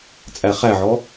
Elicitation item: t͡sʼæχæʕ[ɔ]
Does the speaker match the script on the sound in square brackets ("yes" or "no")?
yes